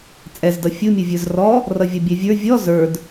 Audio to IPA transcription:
t͡sʼɛzdʌ fʲumʲuvʲə˞z rɔ | rʌvʲʌbʲɛvʲə˞ vʲɔ zə˞d

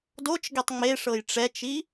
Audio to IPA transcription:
dot͡ʃɡetˤ ŋ͡meʂɤj ʈ͡ʂɛt͡ʃi

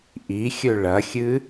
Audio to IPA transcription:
ʔixʲɵ ɭɐxʲɨ

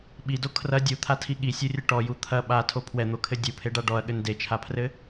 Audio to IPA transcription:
ɓido kʰrɐ dʲut̪ʰatʰi ɠisʲurʲɘ ʈɔju t̪ʰɐ ɓatʰo pʰwɛn̪okʰɘ dʲupʰeɖa ɖɔɐ̯ɠɘn det͡ʃʰapʰrɘ

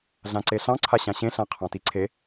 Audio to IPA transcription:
ɮãǀeɬɑ̃ ǀʰaɕãɕẽ ɬãqʰɑ̃tiǀʰe

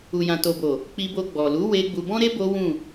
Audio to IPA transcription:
u˨jã˨to˨bo˨ | k͡pi˧bo˧ ɡ͡bɔ˨lu˨˦ we˦ ɡ͡bu˧bɔ̃˦ɾe˦ bo˦wũ˦˨

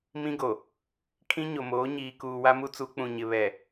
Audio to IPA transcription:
mĩ˦ɡo˨ | kʰĩ˦ɲo˨moː˨˦ ɲiː˨ kuː˨wa˦mu˦t͡su˨˦ k͡pũ˨ɲɪ˨ βɛ˨

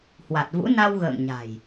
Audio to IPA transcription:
hwa˨˩t̚vṵ˧˥ na˧wɣə̰ː˧˨ŋ ɲa̤˨˩j

